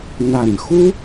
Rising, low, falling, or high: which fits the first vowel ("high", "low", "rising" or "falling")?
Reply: low